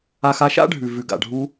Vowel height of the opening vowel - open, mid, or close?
open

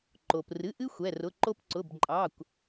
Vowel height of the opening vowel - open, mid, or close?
mid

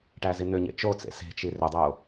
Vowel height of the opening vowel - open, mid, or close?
open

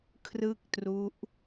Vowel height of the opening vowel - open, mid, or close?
close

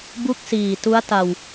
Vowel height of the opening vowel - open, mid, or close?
close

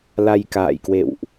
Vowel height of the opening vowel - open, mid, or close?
open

